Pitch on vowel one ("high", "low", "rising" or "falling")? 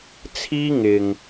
high